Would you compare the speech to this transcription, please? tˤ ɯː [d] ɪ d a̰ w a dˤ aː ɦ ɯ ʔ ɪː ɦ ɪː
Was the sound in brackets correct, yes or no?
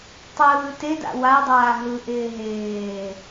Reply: no